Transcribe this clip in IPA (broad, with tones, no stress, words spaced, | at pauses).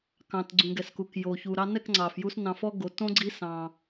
kɑ̃˨t ɡ͡ǀũ˨ɡɛ˨sku˨k jo˨çu˨ ɾɑ˧nɛ˦˨kŋ͡ǀɑ˨fju˧s nɑ̃˧fɔ˦ɡo˨˦ tõ˦ɡ͡ǀi˦sɑ̃˧